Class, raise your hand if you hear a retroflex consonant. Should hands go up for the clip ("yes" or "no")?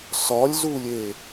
no